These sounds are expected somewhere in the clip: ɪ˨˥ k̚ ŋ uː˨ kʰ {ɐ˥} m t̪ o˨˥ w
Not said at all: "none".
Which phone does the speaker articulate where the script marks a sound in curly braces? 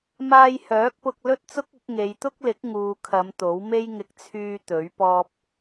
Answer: ɐ˨˧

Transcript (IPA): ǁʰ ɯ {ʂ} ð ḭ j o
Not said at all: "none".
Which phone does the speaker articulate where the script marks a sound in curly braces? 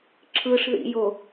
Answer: ʂ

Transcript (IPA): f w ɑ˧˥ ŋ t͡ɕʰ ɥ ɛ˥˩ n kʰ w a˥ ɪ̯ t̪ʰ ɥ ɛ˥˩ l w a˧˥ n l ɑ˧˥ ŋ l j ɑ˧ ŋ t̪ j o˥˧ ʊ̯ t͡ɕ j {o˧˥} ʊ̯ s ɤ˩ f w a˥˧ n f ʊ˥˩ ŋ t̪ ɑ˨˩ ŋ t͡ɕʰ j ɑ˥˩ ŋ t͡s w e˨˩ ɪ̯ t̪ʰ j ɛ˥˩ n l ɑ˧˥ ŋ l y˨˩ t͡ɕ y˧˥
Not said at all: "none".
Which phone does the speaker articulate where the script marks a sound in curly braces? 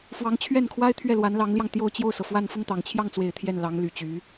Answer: o˥˩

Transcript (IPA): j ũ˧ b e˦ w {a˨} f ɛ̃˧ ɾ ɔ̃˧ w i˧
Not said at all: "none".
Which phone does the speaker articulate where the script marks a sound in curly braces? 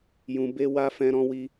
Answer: a˦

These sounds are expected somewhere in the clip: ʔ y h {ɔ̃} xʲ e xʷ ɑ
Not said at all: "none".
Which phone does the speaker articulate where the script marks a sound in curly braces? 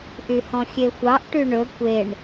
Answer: ɔ̃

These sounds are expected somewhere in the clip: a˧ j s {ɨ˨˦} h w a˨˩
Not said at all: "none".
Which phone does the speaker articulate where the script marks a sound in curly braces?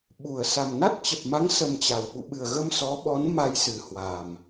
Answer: ɨ˨˩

